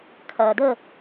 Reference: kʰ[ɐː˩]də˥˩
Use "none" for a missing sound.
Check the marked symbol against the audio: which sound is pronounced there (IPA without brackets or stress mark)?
ɐː˩